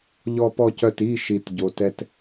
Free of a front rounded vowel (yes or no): no